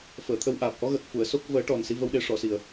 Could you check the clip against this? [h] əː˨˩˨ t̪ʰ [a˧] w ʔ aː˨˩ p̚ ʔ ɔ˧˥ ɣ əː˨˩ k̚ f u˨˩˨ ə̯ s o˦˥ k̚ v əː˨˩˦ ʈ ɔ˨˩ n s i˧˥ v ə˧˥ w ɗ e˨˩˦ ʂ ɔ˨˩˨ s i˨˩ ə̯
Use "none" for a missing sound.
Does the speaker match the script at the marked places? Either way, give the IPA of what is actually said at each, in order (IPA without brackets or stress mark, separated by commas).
f, ə˧